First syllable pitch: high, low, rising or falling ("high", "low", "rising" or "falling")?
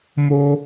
high